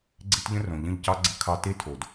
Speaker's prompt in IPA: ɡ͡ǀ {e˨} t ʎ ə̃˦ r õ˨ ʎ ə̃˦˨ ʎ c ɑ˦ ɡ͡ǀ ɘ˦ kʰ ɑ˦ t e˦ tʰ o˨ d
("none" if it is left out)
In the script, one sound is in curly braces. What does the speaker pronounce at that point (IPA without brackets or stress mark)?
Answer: e˦